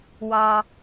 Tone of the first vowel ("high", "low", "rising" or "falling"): low